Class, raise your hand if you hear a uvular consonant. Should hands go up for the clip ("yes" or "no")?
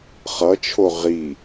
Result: yes